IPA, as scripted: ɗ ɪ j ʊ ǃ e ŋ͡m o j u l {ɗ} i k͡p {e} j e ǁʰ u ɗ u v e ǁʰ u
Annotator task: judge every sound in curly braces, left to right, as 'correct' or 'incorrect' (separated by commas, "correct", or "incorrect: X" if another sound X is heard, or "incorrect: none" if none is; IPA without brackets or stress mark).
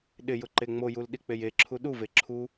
correct, correct